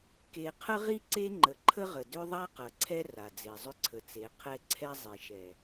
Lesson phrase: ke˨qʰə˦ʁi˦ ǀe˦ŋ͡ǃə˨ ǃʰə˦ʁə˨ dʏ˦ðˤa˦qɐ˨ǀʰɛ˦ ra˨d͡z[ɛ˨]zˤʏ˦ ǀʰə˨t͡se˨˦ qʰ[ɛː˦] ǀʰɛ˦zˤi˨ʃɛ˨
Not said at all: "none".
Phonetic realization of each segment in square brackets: e˨, ɛ˦

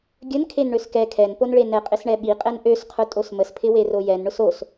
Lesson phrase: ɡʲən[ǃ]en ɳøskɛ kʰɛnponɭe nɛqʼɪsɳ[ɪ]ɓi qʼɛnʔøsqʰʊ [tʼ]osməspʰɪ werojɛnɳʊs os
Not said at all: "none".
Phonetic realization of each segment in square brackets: kʰ, ɛ, tʼ

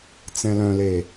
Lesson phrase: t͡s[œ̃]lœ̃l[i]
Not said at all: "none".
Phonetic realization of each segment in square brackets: ɛ̃, e

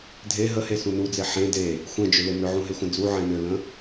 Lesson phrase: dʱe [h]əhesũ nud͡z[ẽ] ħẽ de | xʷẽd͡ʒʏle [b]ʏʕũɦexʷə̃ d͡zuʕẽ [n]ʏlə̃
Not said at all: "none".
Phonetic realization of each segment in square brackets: ɦ, e, m, n

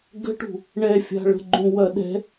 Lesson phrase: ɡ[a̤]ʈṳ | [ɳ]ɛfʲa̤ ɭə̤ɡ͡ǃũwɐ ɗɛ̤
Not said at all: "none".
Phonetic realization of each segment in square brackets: ə̤, ɳ

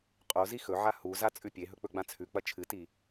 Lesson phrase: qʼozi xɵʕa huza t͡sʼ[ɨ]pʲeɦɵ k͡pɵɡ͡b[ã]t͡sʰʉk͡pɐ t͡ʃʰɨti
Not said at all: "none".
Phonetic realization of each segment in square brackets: ʉ, ã

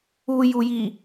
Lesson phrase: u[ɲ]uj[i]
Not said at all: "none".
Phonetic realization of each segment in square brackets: j, i

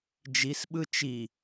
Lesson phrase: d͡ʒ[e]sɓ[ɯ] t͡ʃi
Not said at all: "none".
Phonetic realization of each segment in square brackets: i, ɯ

